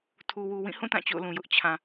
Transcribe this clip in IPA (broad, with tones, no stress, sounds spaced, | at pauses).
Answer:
tʰ u˨ w u˨ w ĩ˦˨ h ũ˦˨ t ã˦˨ t͡ɕ o̰˦˨ ʊ̯ l ũ˨ j ʊ˦ ʔ t͡ɕʰ ã˨